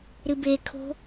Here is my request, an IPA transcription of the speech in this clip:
ɾ ɨ b e kʰ o̤

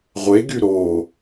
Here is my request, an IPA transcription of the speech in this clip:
ʁʷ e ɡ y ɾ o

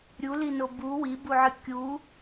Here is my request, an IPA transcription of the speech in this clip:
ɾʲ u l i n o b u w i b u ʕ ɨ kʲ u

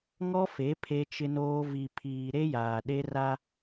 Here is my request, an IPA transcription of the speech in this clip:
ŋ ɔ˦ f e˨˦ pʰ e˦ t͡ʃ ɪ˦ n oː˦ v i˨ pʰ iː˨ ɾ e˦ j aː˨ ɗ e˦ r a˦

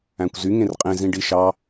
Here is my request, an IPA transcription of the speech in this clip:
æ̃ kʷ z y ŋ ẽ r qʼ ẽ z ĩ ɖ i ʃ ɑ

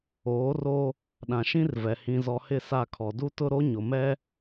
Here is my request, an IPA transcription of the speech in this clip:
oː˨˦ r o˦ | ɗ ã˨ ʃ ĩ˦ r v ɛ˨ h ĩ˨ z ɔ˨ h ɪ˦˨ s a˦˨ kʰ ɔ˨ d u˦ t ʊ˦ ɾ o˦ ɲ ʊ˨ m ɛ˦

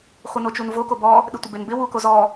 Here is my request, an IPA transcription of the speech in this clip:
χʷ ɪ n o t͡ʃ u n v o k o b ɔ | ɗ ɪ tʷ ə b e n b ɪ w u k o z ɔ

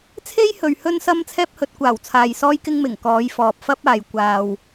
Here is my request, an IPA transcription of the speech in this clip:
t͡sʰ e˥ j h ɵ˨ ɥ h ɵ˧ n s ɐ˧ m t͡sʰ ɛː˥ p̚ h ɵ˨˥ t̚ kʷ aː˨˩ w t͡sʰ aː˨ j s ɔː˥ j k ɪ˥ ŋ m ɪ˨˩ ŋ k ɔː˨˧ j f ɔː˨ p̚ f ɐ˥ p̚ aː˨ j kʷ aː˨ w

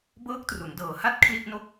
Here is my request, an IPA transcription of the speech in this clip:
b ɤː˦˥ k̚ t r u˩˦ n d ɤː˨˩ h a˥˩ t̚ kʰ l i˥˩ ʔ n o˥˩ k̚

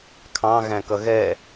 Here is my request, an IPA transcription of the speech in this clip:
kʰ ɑ̃ ɣ æ̃ k ʌ ɣ ɛ

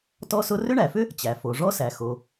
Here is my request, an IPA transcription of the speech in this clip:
t ɔ˦ s ʊ˦ r ʏ˦ ɳ æ˩ f ʏ˦ | t͡ɕ æ˩ f o˩ ʐ ɔ˦ s æ˩ x o˩

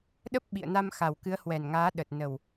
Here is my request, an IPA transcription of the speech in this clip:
ɗ ə˦˥ p̚ ɓ ḭ˧˨ ə̯ n a˧ m x a˨˩ w k ɨ˨˦ ə̯ h w ɛ˨˩ n ŋ aː˨˦ ɗ ə˨˩ t̚ n ə˨˩ w

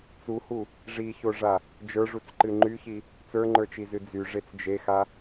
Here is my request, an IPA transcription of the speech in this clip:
t͡s u h u | ʐ i ç o ʐ a | d͡ʒ ə˞ ʐ u t͡s ǃ ɨ ŋ͡ǃ y ç i | t͡s ə˞ ŋ͡ǃ ə˞ t͡ʃ i z ɨ d͡z y ʐ e t͡s d͡ʒ e x a

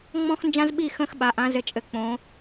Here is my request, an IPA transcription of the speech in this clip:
ŋ͡m ɔ̃˥ x n d͡ʒ ã˥ z ɓ i˥˧ x ə̃ː˥˧ x ɓ a˩˧ ʔ ã˩˧ z ɘ˩˧ t͡ʃʼ ɘ˩˧ k͡p õː˩˧

